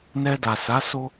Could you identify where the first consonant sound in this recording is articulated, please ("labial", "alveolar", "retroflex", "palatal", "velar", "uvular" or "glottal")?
alveolar